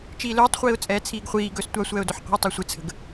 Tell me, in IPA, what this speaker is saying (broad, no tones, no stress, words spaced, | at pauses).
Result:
t͡ʃiːlɵːtˤχʷiːʊ̯t͡sʼɛː t͡sʰiːɡχʷiː ɡɵːstʷasʷɛːʊ̯ dɵħqʷə̤ʊ̯tˤɛ sʷɪt͡sʰə̤ɡ